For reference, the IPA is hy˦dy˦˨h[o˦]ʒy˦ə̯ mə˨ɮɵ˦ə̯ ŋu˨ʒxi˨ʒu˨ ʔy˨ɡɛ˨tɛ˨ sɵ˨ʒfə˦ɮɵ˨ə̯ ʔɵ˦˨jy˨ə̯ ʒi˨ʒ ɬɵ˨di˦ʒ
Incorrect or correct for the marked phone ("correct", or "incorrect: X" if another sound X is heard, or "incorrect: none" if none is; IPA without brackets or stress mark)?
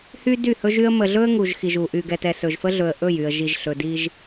incorrect: ɵ˦